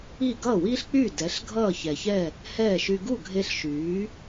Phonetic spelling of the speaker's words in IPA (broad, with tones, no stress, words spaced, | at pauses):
i˥˩ ɡʌː˥˩wiː˥ɬk͡pyː˥˩ dɛ˩˥ɬ ɡʱʌː˥˩çɛ˩çɛ˥˩ | hɛː˥˩ʃy˧ ɡu˥˩ɡʱe˧ɬ ʃyː˩˥